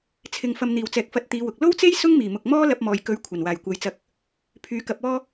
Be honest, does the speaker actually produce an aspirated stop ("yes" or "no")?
yes